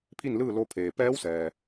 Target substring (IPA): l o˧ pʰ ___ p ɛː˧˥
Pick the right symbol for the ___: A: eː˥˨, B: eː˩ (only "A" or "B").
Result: B